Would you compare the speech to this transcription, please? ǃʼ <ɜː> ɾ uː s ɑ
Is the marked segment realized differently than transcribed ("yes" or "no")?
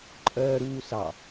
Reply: no